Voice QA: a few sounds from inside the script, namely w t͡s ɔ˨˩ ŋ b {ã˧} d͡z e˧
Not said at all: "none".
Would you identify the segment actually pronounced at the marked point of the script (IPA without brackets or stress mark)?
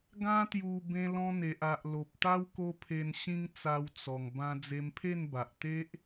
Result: ã˧